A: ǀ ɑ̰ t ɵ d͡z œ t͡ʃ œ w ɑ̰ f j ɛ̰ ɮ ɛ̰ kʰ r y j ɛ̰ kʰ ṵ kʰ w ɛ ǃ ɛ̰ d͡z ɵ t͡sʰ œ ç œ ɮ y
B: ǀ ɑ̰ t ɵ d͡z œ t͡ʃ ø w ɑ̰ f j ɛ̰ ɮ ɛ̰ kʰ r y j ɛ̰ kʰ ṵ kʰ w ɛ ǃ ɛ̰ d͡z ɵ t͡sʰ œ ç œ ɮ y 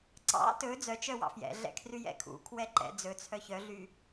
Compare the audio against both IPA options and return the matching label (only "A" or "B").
A